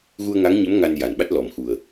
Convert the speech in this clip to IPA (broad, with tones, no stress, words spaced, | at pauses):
ɣu˧ə̯ŋa˧˥ŋɲə˧˥m ŋa˧nja˨˩nɓa˦˥t̚ lɔ˨˩mxu˨˩ə̯